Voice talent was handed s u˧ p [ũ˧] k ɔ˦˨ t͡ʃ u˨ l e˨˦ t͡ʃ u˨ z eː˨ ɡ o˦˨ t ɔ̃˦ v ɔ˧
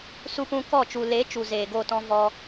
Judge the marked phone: correct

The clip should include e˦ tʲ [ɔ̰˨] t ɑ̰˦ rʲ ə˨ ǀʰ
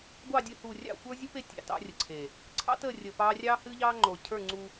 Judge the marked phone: incorrect: ɑ̰˨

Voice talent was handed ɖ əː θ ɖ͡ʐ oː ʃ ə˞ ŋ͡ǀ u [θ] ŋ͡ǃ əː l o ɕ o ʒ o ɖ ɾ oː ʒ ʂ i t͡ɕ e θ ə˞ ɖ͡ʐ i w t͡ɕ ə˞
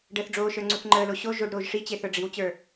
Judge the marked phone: correct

